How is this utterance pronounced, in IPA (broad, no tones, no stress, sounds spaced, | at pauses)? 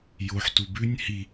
j o ħ t u b ʉ nʲ h i